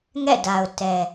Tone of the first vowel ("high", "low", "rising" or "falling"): falling